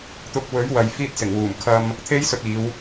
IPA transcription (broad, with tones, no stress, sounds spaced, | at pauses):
t̪ ʊ˧ k̚ w ɵ˨˥ ɥ w ɐ˨ j f iː˧ t̚ s ɪ˨˩ ŋ w uː˨˩ m kʰ ɐ˧ m | t̪ʰ e˥ j s ɵ˧ t̚ iː˨˧ w